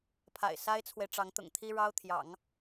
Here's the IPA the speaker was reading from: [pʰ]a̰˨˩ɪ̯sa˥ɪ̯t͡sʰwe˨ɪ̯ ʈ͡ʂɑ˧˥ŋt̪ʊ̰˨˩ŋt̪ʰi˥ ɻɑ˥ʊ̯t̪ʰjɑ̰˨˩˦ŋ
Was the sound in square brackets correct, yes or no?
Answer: yes